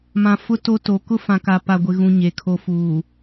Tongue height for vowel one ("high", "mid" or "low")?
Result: low